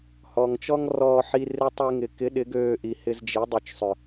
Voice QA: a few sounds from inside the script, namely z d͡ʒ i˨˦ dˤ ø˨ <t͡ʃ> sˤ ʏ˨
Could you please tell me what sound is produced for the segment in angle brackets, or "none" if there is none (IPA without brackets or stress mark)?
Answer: t͡ʃ